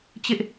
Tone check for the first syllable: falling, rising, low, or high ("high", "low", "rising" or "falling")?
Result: high